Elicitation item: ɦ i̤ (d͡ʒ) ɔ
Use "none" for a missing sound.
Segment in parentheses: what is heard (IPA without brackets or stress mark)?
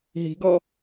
ɡ